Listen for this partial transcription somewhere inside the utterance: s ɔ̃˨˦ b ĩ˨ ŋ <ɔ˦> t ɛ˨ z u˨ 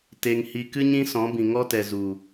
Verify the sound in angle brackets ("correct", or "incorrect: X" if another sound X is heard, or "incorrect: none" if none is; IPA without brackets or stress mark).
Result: correct